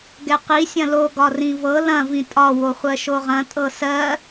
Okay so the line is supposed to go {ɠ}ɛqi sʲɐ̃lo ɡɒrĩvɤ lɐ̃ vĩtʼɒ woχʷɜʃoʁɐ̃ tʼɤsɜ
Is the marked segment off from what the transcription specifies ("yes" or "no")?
yes